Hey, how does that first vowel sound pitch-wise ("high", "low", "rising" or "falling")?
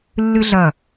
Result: high